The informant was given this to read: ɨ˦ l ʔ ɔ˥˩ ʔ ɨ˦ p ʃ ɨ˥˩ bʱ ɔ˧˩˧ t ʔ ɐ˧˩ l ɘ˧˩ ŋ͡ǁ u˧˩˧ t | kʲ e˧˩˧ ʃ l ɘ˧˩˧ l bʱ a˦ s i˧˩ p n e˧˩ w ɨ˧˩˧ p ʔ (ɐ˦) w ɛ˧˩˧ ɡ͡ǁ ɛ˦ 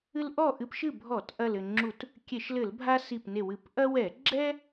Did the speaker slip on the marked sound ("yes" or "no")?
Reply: no